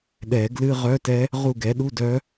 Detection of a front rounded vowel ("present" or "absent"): present